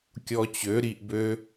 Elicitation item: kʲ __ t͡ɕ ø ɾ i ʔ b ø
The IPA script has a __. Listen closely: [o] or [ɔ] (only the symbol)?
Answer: ɔ